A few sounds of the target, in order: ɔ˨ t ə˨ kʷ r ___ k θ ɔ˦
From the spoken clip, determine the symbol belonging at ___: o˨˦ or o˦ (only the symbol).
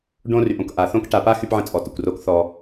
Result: o˦